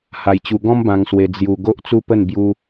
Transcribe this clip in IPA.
h a˧ j t͡ɕ u˧ ɡ ɔ̃˦ m b ã˧ ŋ s w e˧ d͡z j u˧ ɡ o˦ ʔ t͡s u˦ p ə˥˧ n b j u˦

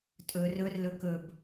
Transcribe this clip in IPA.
tʼ ɵ r ɵ r l ɵ k ɵ b

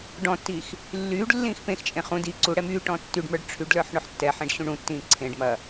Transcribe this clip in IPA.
ɖ ɔ̃ tː i x | lː yː ɖ lː ĩː x p ẽ x t͡ʃʼ ẽ χ ũ d i ǀ u ɽ ɛ m yː ʈ ɔ̃ tː y ɖ m ə˞ ɖ ʈ͡ʂʰ y ɖ l ə˞ ħ ɳ ʊ ħ tː ɛ ħ ẽ ɖ ɕ ũ ɳ ũ tː ĩː ǀʰ ẽ ɖ m ɐ

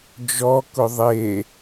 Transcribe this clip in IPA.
d͡ʒ ɔ k ʊ ðˤ e

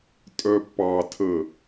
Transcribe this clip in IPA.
tʼ œ pː ɑ tʰ ə

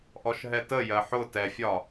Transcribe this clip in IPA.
ʔ ɔ ʃ ɦ ɛ t ə j ɜ ħ ʊ t ɛ fʲ ɒ

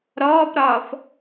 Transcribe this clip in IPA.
ɾ ɔː p ɾ ɒː f

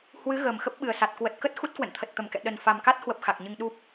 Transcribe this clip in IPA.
h w ɨ˨˦ ɣ əː˨˩ m x ə˦˥ p̚ ɓ ɨ˨˩ ə̯ s a˨˩ t̚ k w ə˨˩ t̚ k ə˦˥ t̚ x u˦˥ t̚ k w ə̰˧˨ n t̪ʰ ə˨˩ t̚ t̪ ə˧˩ m k ɛ̰˧˨ ɗ ə˨˩ n f a˨˩ m k a˦˥ t̚ h w ə˦˥ p̚ x a˨˩ k̚ ɲ ɨ˧ ŋ ɗ u˦˥ p̚

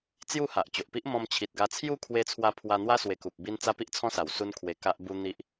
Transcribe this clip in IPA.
t͡s j u˥˧ h a˨ ʔ t͡ɕ o˨ ʔ p i˦ ʔ m ɔ̃˧ m t͡ɕʰ i˨ t̚ ɡ a˧ t͡sʰ j u˥˧ kʰ w e˧ t͡sʰ w a˧ pʰ w a˧ n̪ w a˦ s w e˧ k u˨ p̚ b i˦ n t͡s a˦ p i˦ ʔ t͡sʰ ɔ̃˦ s a˨˩ w s u˦ n kʰ w e˧ k a˦ ʔ b u˧ n̪ i˦ ʔ

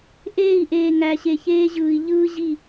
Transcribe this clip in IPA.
ʔ eː˦˨ i̯ ʔ eː˨ ŋ æ˨ ɕ e˨ ç eː˦ ʑ ɯː˨ i̯ ʎ ɯː˦ ʑ i˦˨

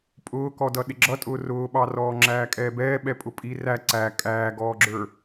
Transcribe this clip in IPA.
pʼ ʊː k ɔ d ʌ ɗ ɪ ɡ͡ǁ ʌ tʼ ʊː r ʊː ɓ ɑ r ɔː ŋ͡ǁ æː kʼ ɛː b ɛː ɓ ɛ pʼ ʊ pʼ i r æ ǀ æ kʼ æː ɡ ɔː ɡ͡ǁ ə˞

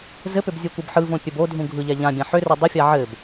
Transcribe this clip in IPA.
z ɘ p ʏ b zʲ ɯ kʷ ɯ b ħ ɯ v õ pʲ ɘ b o dʱ ũ ɡʱ ɯ ʎ ɛ ʎ ã bʲ ã ħ ʏ r ɘ dˤ ʏ fʲ a ʕ ɘ b

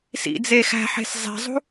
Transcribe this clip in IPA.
s ḭ d͡z e x æ̤ ħ e̤ s zˤ e̤ zˤ ṳ

